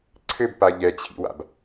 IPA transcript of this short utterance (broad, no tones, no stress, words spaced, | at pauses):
ǀʰɘbpa ʎɛt͡ɕʰḭwa̰b